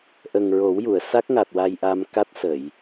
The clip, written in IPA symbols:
ʔ ə˨˩ ŋ ɹ o˨˩˦ w j u˨˩˨ ə̯ s a˦˥ k̚ ŋ a˨˩ t̚ w a˧ j ʔ a˧ m k a˦˥ t̚ s ə˨˩˨ j

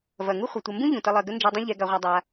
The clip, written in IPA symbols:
v ɐ˩ ŋ u˥ χʷ ɐ˩ tʷ ɐ˨ m b ũ˥ ʎ ũ˩ t ə˨ lˠ ɜ˩ ɡ ə˦ n d͡ʒ ɯ˨ dˤ ə̃˦ ʎ ɛ˨ ɡ a˨ ʁʷ a˨ dˤ a˨

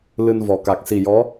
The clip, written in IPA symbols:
l ɨ˧ n v ɔ˨˩ k a˨˩ k̚ s i˨˩ j ɔ˧˥

